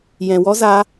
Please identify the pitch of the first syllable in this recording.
low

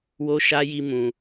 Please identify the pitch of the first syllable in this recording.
high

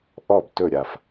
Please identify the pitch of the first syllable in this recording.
falling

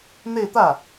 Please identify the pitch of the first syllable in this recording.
falling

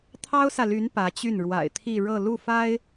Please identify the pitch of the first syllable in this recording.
high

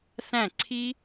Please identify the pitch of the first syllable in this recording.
falling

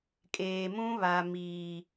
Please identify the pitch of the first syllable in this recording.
low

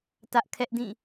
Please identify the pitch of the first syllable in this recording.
high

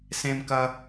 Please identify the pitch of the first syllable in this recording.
high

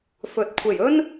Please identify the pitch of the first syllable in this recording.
rising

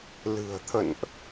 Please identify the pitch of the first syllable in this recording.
low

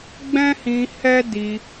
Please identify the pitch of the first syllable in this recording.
high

